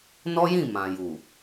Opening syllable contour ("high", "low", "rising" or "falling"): high